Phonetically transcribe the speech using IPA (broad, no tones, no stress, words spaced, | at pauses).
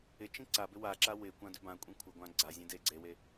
ɪt͡ʃĩ ǀabɪ waǁa wɪkʷã dʏbãkʷʼĩ kʷʰɪɡʷã ɡ͡ǀazʲẽ deɡ͡ǀewe